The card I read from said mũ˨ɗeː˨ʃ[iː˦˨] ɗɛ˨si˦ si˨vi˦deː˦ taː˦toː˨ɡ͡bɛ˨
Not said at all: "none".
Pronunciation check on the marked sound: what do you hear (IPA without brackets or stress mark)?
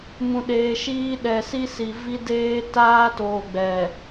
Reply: iː˦